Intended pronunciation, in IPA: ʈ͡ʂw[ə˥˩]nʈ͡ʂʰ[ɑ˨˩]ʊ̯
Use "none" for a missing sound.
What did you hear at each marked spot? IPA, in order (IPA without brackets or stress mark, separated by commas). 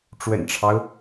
ə̰˨˩, ɑ˦